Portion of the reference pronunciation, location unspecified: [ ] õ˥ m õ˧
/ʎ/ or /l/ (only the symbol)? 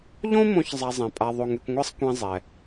ʎ